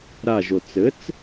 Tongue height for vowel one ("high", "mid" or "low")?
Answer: low